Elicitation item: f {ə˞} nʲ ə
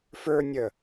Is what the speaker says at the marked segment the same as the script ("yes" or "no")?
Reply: yes